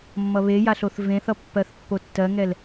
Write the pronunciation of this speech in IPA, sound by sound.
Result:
mː ʌ β e j a ɬ o θ v ẽ θ ʌ pː ɜ θ pː o tː ɜ ŋ ɛ l

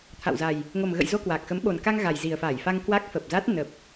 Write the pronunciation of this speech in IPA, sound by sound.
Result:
t̪ʰ a̰˧˨ w z a˨˩ j | ŋ o˨˩ m ɣ ə̰˧˨ j z o˧ k w a˨˩ k̚ x ə˨˦ m ɓ o˨˩ n k a˧ ŋ ɣ a˨˩ j z i˨˩ ə̯ f a˧˩ j f a˧ ŋ k w a˦˥ k̚ f ə˨˩ p̚ z a˦˥ t̚ n ə˨˩ p̚

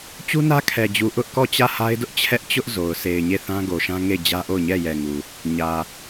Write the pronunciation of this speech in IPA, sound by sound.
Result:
t͡ɕ u˦ n ä˦ kʰ ɛ˨ d͡ʑ u˨ ʔ ʊ˦ ʔ k ɔ˦˨ t͡ɕ ä˦˨ h a˦ ɪ̯ d ʊ˦ ʔ t͡ɕʰ ɛ˦ ʔ t͡ɕ ʊ˦ ʔ z o˨ ʊ̯ s e˨ ɪ̯ ɲ e˦˨ θ ã˦ ɡ o˨ ʃ ã˦ ŋ e˦˨ ɪ̯ d͡ʑ ä˦ ʔ o˦˨ ʊ̯ ɲ ɛ˦˨ j ɛ˨ ŋ u˨ | ɲ ä˨

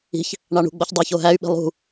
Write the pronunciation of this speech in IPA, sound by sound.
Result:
i̤ ç | ɳ ɑ ɳ ṳ ɡ͡b o ç dˤ æ ç o ɦ æ y̯ ɓ i̤ lˠ ṳ

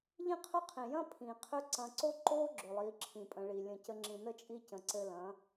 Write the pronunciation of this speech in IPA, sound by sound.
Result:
ʎ ĩ˦ qʰ ɵ˦ qʰ ĩ˨ j ɐ̃˦ pʰ ĩ˨ qʰ ø˦ ǀ ɐ̃˧ ǀ o˦ ǃ o˦ ɡ͡ǁ ɵ˨ lˠ i˨˦ ǁʰ ĩ˨ pʼ ə̃˧ ɭ i˨ lʲ ə̃˧ c ə˧ ŋ͡ǁ ĩ˨ n ə˦ t͡ʃʼ i˦ c ə̃˨ ǀ ɘ˧ l ɐ̃˨˦

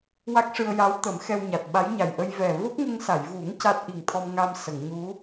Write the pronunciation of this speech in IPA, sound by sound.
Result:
w a˦˥ k̚ ʂ ɨ˧ ə̯ j aː˧˥ w t̪ ə˨˩˦ m x ɛ˧ w ɲ a˨˩ t̚ ɓ a˧˥ j ɲ a˨˩ j ʔ ə˧ j v ɛ˨˩ v o˦˥ k̚ ŋ ə˧ ŋ s a˨˩˨ j v u˨˩˦ ŋ c a˦˥ t̚ ʔ i˨˩ ŋ t̪ʰ ɔ˧ m ŋ a˧ m s ə˨˩˨ ŋ ɲ u˧˥

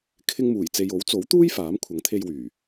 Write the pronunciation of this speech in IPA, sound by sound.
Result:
kʰ ɪ˧ ŋ m uː˨˩ j t͡s e˨ j o˨˥ w t͡s o˨˥ w t̪ uː˥ j f aː˨˥ m kʷʰ ɐ˨˥ ŋ t̪ʰ e˧ j w yː˨˩

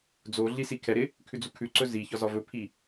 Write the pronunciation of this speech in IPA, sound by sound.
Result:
d͡z o ɮ i s i kʰ ɛ ɾ ɪ | kʰ ʉ d͡z u kʰ ʉ ǀ ɵ z i ç ɒ z ɒ v ɵ pʰ i

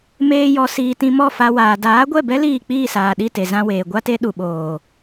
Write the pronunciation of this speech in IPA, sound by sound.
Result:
m eː˧ j ɔ˨ s iː˨ t ĩ˧ m ɔ˦˨ f a˧ w aː˨ d aː˨˦ ɡʷ ɛ˦˨ b ɛ˦ l iː˦˨ k͡p iː˦˨ s aː˨ ɗ i˦˨ t e˨ z ã˧ w eː˨ ɡʷ a˦ t e˦ ɗ u˨ ɓ oː˨

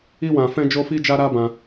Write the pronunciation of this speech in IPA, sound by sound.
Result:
i˦ w ã˧ f ɛ̃˦ d͡ʒ o˦ f i˦ d͡ʒ a˦ ɾ a˦ b ã˧

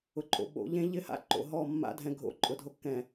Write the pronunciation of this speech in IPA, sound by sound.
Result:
ʊ˨ ǃʼ o̰˨ ɓ o̰˨˦ ʎ ẽ˦ ʎ ɪ˦˨ h a̰˦ ǃ o̰˨ ɦ ɔ˦˨ mː a̰˦ dʱ ɛ̃˨ ɡʱ o̰˦ ǃʼ ʊ˨ dʱ o˦ kː ɛ̃˨

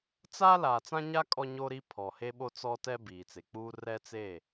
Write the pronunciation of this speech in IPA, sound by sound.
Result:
t͡s a˦ l aː˨ t͡s ã˦ ɲ a˦ kʼ ɔ˦ ɲ o˦ ɾ i˦ pʰ ɔ˨ h e˦ ɓ o˦ t͡s ɔ˦ t ɛ˦ b iː˨ t͡s e˨ k͡p uː˦ r ɛ˦ t͡s e˦˨

